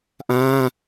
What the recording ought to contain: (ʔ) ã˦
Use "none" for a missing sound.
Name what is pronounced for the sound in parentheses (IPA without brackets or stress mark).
ʔ